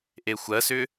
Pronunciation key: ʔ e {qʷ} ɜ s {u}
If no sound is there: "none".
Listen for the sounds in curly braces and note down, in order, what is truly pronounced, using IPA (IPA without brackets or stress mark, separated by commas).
xʷ, ʏ